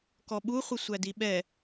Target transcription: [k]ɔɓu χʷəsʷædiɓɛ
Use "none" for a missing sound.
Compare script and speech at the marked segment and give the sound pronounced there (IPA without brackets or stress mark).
k